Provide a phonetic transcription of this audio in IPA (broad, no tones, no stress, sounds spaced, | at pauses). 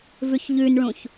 v ʉ ç ʎ ʉ n ɭ ũ ç